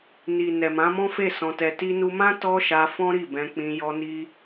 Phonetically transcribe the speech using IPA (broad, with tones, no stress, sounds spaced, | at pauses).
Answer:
n i˨ n ɛ˨ m ã˨˦ m ɔ̃˦ f e˦˨ s ɔ̃˧ t ɛ˧ t i˧ n u˧ m ã˦ t ɔ˦ ʃ a˧ f ɔ̃˦ ɾ i˦˨ b ɛ̃˧ k͡p ĩ˧ j ɔ˧ n i˧